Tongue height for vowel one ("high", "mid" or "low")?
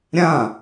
low